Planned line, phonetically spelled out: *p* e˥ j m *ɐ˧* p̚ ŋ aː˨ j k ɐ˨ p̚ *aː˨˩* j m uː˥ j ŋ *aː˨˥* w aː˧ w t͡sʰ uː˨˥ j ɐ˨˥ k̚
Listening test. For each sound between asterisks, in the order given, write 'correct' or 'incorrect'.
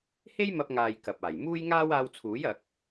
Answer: incorrect: h, correct, correct, incorrect: aː˥

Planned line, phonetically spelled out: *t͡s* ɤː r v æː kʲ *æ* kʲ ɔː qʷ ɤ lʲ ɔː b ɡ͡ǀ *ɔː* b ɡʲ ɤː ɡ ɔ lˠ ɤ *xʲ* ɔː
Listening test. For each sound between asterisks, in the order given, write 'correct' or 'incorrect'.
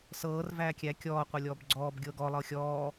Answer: incorrect: s, correct, correct, correct

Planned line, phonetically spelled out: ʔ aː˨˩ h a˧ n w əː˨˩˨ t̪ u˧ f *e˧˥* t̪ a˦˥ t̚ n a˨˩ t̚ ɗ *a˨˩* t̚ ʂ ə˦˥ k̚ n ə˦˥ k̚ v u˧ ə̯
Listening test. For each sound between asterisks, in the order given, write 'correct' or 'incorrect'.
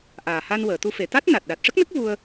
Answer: incorrect: e˨˩, correct

